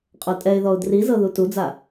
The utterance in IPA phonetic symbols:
qʼ o tʼ ɛ ɪ̯ ð ɔ ʊ̯ d r i z ɤ ð u t u d͡z a

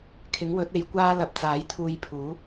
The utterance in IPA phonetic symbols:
kʰ ɪ˨˥ ŋ w ɵ˨˥ t̚ e˨˧ j kʷ aː˥ l ɐ˧ p̚ t͡s aː˨˥ j t̪ʰ uː˧ j pʰ uː˨˥

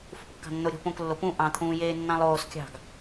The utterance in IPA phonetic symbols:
f ṳ p kː ɑ̤ nː o ɾʲ o̤ p õ k lː o p ũ ʔ ɑ̃ t̪ʰ ũː j eː nː ɑ̃ lˠ oː s kʲ ɑ̤ ɡ

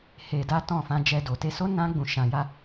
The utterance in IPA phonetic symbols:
h e˧ d a˦ t ɔ̃˦˨ f ã˧ d͡ʒ ɛ˧ d o˨ t e˧ s o˦ n ã˦ ɡ͡b ũ˧ ʃ ã˧ j a˦

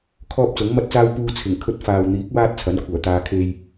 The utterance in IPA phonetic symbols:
kʰ ɔː˧ p̚ t͡s ʊ˨˥ ŋ m ɐ˥ t̚ t͡s aː˥ w p uː˧ t͡sʰ ɪ˨˩ ŋ kʰ ɵ˧ t̚ f aː˨ w n̪ iː˨˥ k̚ w aː˥ t̚ t͡sʰ ɐ˨˥ n kʷʰ œː˨˩ t̪ aː˧ kʰ e˧ j

